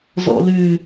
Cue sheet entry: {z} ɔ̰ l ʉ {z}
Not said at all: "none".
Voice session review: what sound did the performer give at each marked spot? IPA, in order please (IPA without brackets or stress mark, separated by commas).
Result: z, none